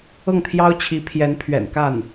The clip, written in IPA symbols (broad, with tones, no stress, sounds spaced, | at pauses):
ɤ˥˩ ŋ t̪ʰ j ɑ˥ ʊ̯ t͡ɕʰ i˧˥ pʰ j ɛ˧˥ n pʰ ɥ ɛ̰˨˩ n k a˥˩ n